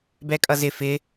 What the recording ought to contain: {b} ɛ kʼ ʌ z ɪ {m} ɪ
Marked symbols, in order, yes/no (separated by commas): yes, no